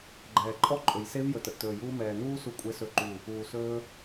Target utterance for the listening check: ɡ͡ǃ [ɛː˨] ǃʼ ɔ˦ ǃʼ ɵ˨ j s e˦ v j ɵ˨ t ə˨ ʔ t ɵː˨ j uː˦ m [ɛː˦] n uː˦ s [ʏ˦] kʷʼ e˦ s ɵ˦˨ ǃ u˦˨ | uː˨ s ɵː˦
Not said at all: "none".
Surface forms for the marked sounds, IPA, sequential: ɛː˨, ɛː˨, u˦

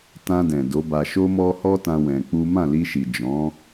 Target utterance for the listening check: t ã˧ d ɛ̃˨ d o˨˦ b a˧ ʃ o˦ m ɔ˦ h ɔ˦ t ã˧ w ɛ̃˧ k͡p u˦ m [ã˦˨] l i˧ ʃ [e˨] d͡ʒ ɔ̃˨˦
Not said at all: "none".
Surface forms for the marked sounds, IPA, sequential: ã˦˨, i˨

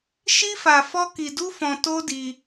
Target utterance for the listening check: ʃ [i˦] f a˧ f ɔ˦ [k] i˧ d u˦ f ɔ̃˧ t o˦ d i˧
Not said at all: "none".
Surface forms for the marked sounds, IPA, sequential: i˦, k

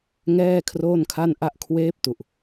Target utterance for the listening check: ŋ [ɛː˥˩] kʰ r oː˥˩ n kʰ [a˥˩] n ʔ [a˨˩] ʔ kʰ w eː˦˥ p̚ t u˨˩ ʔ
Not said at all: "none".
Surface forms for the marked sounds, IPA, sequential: ɛː˥˩, a˥˩, a˥˩

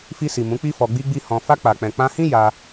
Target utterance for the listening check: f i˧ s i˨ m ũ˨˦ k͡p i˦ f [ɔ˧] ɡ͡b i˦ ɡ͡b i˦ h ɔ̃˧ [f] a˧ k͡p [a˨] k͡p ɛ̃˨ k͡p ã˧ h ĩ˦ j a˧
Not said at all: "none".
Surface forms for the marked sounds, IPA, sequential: ɔ˧, f, a˨

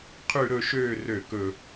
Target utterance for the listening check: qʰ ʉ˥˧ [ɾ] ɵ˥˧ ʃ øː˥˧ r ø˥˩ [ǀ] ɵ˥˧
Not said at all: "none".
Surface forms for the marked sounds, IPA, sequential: ɾ, k

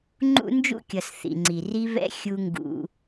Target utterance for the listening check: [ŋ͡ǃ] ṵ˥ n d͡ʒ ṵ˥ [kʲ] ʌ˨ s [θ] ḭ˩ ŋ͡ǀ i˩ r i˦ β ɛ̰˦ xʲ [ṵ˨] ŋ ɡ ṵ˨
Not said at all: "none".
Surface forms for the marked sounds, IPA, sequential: ŋ͡ǃ, kʲ, θ, u˨

